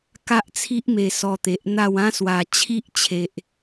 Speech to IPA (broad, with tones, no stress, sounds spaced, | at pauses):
k a˦ ʔ t͡sʰ i˦ ʔ m e˧ s ɔ˧ t̪ e˨ ʔ n̪ a˥˧ w ã˦ s w a˨˩ t͡ɕʰ i˦ ʔ t͡ɕʰ e˨ ʔ